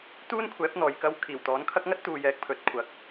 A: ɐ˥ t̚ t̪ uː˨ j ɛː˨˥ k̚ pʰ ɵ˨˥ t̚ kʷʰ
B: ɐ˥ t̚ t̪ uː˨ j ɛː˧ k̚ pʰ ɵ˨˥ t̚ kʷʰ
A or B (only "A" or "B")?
A